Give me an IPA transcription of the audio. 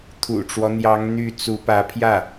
t̪ʰṵ˨˩ʈ͡ʂwɔ˦n̪jɑ˧˥ŋ n̪y˥˩ t͡su˧˥pä˧˥pʰjä˥˩

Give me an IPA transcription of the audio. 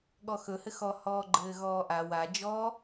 ɠɔxɵhɘ xɔhɔːɡ͡ǃɘː ɣɔːʔa wa d͡ʒɔ

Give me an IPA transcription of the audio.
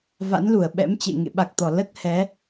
va̰˧˥nlu˧˩ə̯ɓɛ̰˧˥mt͡ɕḛ˧˨ ŋḛ˧˨ɓa˨˩k̚t̪ɔ˧˩ lə˦˥t̚hɛ˨˦

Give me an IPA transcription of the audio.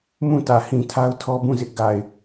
mũ˦˨tä˨hĩ˨ tʰa˦ʊ̯tʰɔ˦bũ˦˨zɪ˦ʔ ɡa˨ɪ̯

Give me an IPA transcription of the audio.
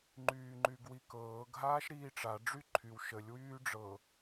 ŋ͡ǃyːŋ͡ǃyɡwikɤːɡ ɦaːʃɾiːʈ͡ʂa ɖ͡ʐyǃʰyw ʃəlʲ wyːɖ͡ʐɤ

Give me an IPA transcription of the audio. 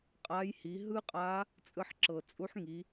qʼa˧˥j hi˩˧ɦɯ˥qʼa˧˥ | t͡sʼɯ˧ħǁɤ˩t͡sʼu˧˥ħŋi˩˧

